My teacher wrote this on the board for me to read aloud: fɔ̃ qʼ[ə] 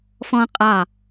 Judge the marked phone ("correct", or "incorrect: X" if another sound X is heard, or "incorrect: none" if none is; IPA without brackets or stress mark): incorrect: ɑ